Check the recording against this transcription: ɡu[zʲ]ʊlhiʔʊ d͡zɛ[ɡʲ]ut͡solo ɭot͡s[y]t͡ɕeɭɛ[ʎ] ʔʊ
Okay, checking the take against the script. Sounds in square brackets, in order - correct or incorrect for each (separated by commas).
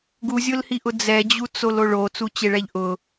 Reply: correct, incorrect, incorrect, correct